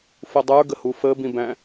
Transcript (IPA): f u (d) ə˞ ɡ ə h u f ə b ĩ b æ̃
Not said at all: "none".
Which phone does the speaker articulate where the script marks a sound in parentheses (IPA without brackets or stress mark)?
dˤ